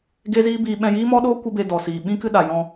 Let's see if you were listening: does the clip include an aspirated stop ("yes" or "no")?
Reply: no